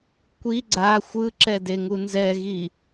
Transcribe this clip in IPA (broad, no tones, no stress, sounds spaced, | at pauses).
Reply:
kʷ i ɡ͡ǀ a xʷ ɯ ǁ ɛ d e ŋ u n z ɛ ɣ i